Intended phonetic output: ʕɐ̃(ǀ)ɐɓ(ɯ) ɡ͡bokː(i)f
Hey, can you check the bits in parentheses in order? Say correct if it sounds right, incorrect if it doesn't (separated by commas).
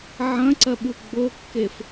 correct, incorrect, incorrect